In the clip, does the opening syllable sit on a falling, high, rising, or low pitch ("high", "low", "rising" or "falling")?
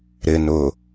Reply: low